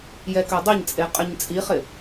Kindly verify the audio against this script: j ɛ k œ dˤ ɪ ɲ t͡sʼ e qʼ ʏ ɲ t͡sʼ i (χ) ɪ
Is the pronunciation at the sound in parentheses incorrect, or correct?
correct